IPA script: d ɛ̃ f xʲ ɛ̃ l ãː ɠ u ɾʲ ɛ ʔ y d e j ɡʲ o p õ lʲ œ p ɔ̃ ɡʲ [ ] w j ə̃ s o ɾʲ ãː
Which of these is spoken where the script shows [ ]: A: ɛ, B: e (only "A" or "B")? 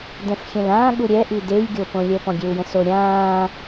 B